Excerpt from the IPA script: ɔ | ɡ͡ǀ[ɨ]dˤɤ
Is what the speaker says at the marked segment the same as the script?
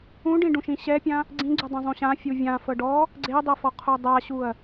no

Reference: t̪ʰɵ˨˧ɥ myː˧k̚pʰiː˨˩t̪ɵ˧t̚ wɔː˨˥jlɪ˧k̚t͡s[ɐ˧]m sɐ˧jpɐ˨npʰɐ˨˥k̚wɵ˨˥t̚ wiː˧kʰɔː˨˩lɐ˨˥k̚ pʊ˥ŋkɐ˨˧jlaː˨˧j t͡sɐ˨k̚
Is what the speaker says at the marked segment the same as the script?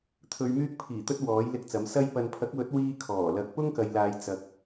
no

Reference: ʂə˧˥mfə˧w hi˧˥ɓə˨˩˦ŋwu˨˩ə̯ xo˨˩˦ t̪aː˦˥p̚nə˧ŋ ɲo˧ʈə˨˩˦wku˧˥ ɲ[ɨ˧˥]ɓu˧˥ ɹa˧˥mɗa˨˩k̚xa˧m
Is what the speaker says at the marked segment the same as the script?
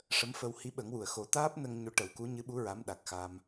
yes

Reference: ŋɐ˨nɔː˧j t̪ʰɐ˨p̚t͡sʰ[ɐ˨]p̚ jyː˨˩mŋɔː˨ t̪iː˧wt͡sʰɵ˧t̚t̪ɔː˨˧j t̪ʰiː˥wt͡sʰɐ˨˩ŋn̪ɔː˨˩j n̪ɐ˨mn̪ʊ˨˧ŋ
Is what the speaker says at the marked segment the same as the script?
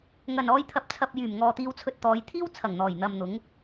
yes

